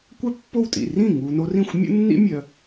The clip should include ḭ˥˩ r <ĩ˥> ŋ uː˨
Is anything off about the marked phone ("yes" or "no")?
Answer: yes